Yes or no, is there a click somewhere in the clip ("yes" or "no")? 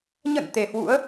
no